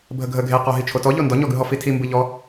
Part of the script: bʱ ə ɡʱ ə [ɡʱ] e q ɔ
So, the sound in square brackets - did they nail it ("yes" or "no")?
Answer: yes